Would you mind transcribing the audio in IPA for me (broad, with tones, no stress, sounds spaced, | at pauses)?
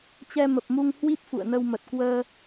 t͡ɕ ɛ˧ m ə˨˩ p̚ m u˧ ŋ h w i˦˥ p̚ f ṵ˧˨ ə̯ n ə˧ w m ə˨˩ t̚ k w əː˧